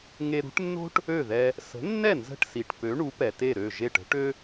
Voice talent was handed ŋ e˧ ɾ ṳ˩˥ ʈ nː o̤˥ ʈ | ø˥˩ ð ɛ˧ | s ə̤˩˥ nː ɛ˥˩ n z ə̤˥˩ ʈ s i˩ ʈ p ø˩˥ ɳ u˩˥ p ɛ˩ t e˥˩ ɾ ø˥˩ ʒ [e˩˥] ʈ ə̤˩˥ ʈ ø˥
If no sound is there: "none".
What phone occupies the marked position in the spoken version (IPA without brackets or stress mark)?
e˥˩